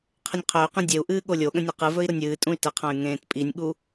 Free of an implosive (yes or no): no